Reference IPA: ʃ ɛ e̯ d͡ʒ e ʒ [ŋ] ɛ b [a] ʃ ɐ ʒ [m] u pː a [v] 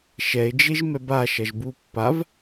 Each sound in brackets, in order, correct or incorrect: incorrect, correct, incorrect, correct

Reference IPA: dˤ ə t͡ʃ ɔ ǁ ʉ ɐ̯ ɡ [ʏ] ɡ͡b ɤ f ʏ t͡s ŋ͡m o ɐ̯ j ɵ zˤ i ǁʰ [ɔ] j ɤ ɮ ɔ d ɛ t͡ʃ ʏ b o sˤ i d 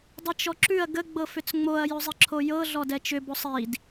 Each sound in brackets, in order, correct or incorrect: incorrect, incorrect

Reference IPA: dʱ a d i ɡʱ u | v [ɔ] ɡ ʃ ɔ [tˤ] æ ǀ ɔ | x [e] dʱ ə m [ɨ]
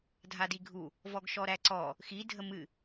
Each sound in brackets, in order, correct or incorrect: correct, incorrect, incorrect, correct

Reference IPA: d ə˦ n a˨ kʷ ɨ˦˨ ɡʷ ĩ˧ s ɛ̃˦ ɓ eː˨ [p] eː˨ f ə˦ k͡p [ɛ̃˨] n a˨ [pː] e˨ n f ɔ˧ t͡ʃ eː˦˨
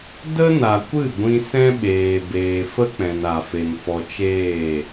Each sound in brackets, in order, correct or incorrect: incorrect, correct, incorrect

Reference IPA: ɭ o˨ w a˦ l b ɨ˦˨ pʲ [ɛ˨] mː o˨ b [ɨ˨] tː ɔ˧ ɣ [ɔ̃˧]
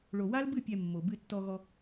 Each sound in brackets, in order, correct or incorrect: incorrect, incorrect, incorrect

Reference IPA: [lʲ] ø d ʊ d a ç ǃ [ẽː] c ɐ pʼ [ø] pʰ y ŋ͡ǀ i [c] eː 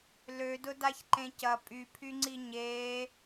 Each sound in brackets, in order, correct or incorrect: incorrect, incorrect, incorrect, incorrect

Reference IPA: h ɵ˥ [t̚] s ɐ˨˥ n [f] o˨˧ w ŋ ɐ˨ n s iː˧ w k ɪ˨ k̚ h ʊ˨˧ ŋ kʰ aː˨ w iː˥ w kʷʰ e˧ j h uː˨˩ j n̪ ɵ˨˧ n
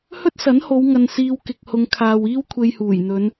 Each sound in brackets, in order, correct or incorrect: correct, incorrect

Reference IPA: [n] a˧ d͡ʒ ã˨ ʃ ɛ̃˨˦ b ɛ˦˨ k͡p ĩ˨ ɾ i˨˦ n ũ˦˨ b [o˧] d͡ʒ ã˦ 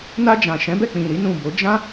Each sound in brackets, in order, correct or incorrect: correct, incorrect

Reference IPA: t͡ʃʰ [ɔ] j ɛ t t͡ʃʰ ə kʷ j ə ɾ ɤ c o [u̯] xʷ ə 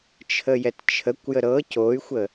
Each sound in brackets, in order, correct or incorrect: incorrect, incorrect

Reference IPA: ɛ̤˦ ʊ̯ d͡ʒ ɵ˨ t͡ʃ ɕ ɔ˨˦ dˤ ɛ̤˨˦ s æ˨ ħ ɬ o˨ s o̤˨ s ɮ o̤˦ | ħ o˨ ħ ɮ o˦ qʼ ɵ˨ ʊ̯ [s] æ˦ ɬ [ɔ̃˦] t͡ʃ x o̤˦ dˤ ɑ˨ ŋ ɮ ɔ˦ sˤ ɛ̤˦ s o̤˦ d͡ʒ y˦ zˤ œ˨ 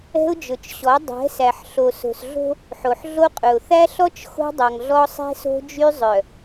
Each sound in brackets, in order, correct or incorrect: incorrect, incorrect

